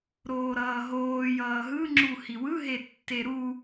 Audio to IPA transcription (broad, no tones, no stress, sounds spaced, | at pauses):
ɾ oː ɾ ʌː ɦ oː j ʌː ɦ ɯ ŋ͡ǁ u h i w ɯ ɦ e tː e ɾ u